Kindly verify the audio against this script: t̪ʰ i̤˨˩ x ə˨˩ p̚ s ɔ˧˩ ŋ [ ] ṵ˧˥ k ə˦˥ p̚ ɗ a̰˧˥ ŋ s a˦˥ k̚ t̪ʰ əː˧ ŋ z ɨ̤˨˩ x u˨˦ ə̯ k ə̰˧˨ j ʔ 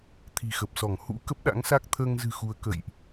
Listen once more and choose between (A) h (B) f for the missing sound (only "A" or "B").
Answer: A